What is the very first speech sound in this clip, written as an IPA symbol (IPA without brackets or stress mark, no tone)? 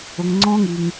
ʊ